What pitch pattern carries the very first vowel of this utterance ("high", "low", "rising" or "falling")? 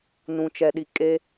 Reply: low